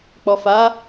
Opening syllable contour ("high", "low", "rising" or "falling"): low